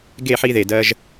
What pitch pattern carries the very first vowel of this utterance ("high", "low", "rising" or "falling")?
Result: falling